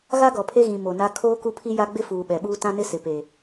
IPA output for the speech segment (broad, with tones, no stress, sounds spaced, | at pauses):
ɣ a˦ ɡ ɔ˨ pʰ e˦ ɣ ĩ˨ m o˨ n a˦ kʰ oː˦ k u˦ pʰ i˦ j a˦ ɡ͡b ɪ˦ f uː˨ ɓ ɛ˨ ɓ uː˦ t ã˦ n ɪ˦ s ɪ˨ p eː˨